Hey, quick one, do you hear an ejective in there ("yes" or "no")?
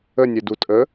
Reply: yes